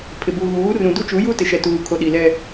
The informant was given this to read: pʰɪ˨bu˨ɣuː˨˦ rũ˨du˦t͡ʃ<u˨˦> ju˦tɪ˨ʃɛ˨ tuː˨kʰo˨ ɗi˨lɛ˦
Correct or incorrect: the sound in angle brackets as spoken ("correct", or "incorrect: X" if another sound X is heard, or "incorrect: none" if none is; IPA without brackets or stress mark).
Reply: correct